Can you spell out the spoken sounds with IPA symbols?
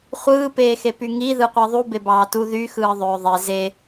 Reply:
χʷ ɯː p eː x e p y ŋ i ð ɯ qʷ i ðˤ u b e b ɑː t u ð y x ɯː ðˤ øː ðˤ e z e

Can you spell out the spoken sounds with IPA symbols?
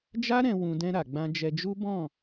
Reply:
d͡ʒ a˦ ɾ ɛ̃˧ w ũ˧ d ɛ̃˧ ɾ a˨ ɡ͡b ã˧ d͡ʒ ɛ˧ d͡ʒ u˦ b ɔ̃˦˨

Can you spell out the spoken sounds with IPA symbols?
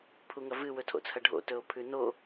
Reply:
pʰ u ŋ ɐ v ɨ w ɵ tʰ o̰ t͡sʰ ɐ ɖʱ o̰ t ɵ o̯ pʰ ʉ n o

